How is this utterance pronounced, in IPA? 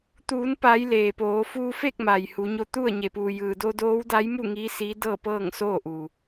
t̪ uː˩˧ n p a˩˧ j l eː˩ p oː˩˧ f uː˧ f e˥˨ k̚ m a˩ j h u˩˧ ɲ o˧ t̪ u˥˨ ə̯ ɲ e˩ p uː˩ j ɯː˩ d o˧ d oː˧˥ w d a˧˥ j m u˥˨ ŋ iː˧˥ s iː˧˥ d ɤː˥˨ p ɤː˥˨ ŋ s oː˥˨ ʔ u˩

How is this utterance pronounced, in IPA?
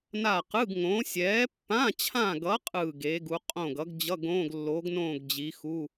n a˦˨ q ɯ˧˥˧ ɡ ŋ õ˨˥ sʲ ɛː˨˥ pː ã˧˥˧ t͡ɕʰ ã˦˨ ɡ ʌ˨˥ qʼ ɯː˦˨ ɡ e˨˥ ɡ u˨˥ qʼ õ˦˨ ɡ ʌ˨˥ ɡ d͡ʑ ʌ˧˥˧ ɡ õː˧˥˧ ɡ lː o˨˥ ɡ n õː˦˨ ɡ d͡ʑ i˨˥ x u˧˥˧

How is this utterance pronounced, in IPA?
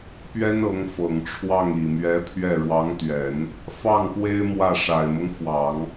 p ɥ ɛ˥ n ɤ˧˥ ŋ f ɤ˨˩ ŋ ʈ͡ʂʰ w ɑ˥˩ ŋ i˨˩ m ɥ ɛ˧˥ pʰ ɥ ɛ˥˩ ɻ w ɑ˧˥ ŋ t̪ ɥ ɛ˨˩˦ n | f ɑ˥˩ ŋ p w e˥ ɪ̯ m w ä˥˩ ʂ a˨˩ ɪ̯ m ɤ˦ ŋ f w ɑ˨˩˦ ŋ

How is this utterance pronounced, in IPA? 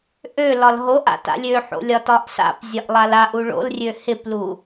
ʔ ø l ɒ l ɦ o ʔ a̰ t a̰ lʲ ø ħ o̰ lʲ ɒ t ɒ ʔ s a̰ p zʲ ɒ ʔ lˠ a l a ʔ u ɭ o̰ l rʲ ø h ɪ p l u

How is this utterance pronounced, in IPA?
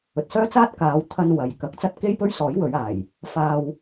ɵ˨ t̚ s œː˥ t͡s aː˥ t̚ k aː˨˧ w t̪ʰ ɐ˧ n w ɐ˨˧ j k ɐ˨˥ k̚ t͡s ɐ˥ t̚ k e˥ j p ɵ˥ ɥ s ɔː˨˥ j w ɵ˨˧ ɥ aː˨˩ j | f aː˧ w

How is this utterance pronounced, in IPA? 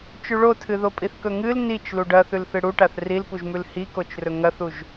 t͡ʃ ʉ ɭ o tʰ ɨ ð o pʼ i θ k ɵ ŋ ɨ l n i t͡ʃ l u ɖ ɐ θ ʉ l θ ɨ ɽ u ʈ a θ r i l p u ʒ m ʉ l h i k o t͡ʃ r ɵ ŋ ɐ θ u ʒ

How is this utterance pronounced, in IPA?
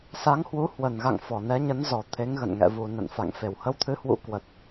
s a˨˦ ŋ h w u˨˦ h w ə˨˩ n ɣ a̰˧˨ ŋ f ɔ˨˩ n ɛ˨˦ ɲ ə˨˦ n z ɔ˨˩ t̪ʰ e˨˦ ŋ ɣ ə̰˧˨ n ŋ ɛ̰˧˨ v u˨˩ n ə̰˧˨ n f a̰˧˨ ŋ f e˧˩ w h ə˧ w t̪ʰ ɨ˨˦ h w ṵ˧˥ k w ə˨˩ t̚

